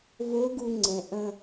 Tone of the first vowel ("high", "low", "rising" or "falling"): rising